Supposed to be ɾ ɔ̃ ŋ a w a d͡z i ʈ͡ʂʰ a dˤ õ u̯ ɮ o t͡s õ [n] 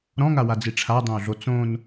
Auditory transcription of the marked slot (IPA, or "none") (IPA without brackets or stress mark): n